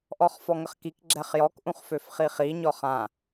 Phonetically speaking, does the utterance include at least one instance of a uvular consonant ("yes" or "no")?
yes